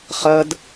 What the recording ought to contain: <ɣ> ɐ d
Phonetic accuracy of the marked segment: incorrect: χ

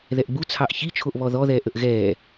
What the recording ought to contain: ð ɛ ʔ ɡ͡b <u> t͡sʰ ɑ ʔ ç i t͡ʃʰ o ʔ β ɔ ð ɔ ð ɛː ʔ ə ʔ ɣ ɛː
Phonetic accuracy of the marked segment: correct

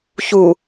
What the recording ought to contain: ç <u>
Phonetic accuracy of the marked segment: correct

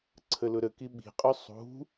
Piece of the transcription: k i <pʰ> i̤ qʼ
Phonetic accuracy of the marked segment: incorrect: ɓ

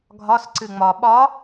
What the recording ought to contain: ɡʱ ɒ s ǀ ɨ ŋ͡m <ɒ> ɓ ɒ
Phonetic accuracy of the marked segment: correct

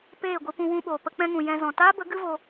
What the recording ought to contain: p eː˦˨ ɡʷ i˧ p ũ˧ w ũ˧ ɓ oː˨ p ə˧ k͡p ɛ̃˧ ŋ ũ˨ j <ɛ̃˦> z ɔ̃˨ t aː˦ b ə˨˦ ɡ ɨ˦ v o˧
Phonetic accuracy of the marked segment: incorrect: ɛ̃˧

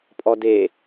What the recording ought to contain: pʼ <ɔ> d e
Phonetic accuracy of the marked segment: correct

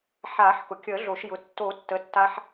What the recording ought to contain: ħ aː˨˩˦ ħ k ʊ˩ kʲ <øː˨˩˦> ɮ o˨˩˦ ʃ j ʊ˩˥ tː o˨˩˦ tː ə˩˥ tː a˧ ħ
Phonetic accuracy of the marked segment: incorrect: əː˨˩˦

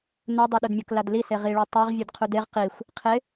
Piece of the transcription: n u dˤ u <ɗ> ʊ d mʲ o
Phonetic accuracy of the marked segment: correct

